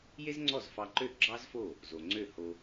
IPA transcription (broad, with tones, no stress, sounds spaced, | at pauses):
j e˥ z ŋ͡ǀ ɔ˥˩ z f ɑ˧ ǃ ø˥˩ ɡ͡ǁ ɑ˥ z f o˥˩ | z o˩ ŋ͡ǀ ø˥˩ h o˧